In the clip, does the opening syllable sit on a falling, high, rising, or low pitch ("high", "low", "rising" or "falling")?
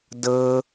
low